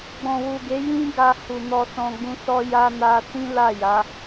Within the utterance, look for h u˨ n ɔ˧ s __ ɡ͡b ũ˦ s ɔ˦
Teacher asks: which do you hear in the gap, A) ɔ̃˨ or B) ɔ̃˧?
B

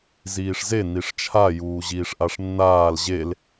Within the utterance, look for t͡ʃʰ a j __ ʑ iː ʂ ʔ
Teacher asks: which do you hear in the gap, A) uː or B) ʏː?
A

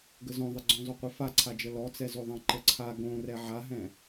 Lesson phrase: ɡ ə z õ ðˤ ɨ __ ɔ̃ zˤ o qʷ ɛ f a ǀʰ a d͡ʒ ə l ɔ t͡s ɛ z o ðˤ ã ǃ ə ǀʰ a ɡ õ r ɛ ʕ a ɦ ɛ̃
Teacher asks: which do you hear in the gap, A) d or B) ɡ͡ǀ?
B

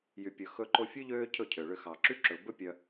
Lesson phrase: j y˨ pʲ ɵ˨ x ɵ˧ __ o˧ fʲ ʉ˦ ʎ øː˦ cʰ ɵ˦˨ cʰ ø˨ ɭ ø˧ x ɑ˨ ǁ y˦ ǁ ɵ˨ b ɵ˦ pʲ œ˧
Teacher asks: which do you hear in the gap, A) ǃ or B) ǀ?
A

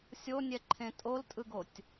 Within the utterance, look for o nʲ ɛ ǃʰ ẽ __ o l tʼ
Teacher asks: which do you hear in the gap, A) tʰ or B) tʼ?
B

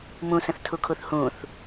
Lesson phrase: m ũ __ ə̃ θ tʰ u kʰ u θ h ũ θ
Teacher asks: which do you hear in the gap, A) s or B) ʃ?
A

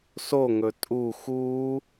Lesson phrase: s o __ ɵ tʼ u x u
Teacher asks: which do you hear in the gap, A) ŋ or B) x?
A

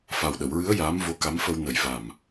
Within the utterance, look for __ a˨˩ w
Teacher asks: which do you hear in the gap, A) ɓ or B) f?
B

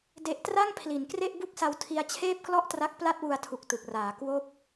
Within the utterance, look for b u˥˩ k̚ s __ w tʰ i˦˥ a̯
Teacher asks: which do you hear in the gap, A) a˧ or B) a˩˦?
A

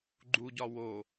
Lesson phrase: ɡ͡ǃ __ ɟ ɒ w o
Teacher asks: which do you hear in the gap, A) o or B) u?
B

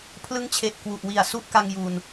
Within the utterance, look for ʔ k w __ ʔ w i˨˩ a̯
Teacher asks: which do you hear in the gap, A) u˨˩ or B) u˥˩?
A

